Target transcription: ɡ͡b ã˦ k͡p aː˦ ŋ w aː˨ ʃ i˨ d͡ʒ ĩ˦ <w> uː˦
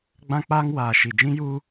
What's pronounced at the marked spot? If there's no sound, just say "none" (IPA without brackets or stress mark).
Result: j